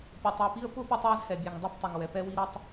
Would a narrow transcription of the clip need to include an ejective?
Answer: no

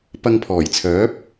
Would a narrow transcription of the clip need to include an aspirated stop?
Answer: yes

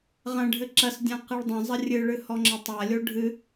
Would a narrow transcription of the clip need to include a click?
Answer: yes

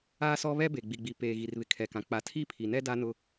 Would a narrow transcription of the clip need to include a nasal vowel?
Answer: yes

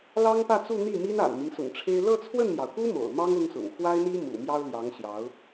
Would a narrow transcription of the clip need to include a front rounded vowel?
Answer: no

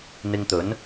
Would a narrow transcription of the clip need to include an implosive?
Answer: no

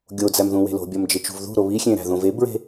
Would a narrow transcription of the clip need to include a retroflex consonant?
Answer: no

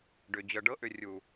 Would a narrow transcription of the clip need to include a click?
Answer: no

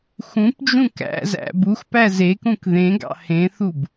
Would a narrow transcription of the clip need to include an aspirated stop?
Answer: no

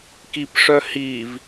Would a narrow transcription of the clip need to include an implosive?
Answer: no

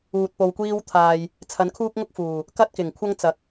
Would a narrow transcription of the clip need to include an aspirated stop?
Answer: yes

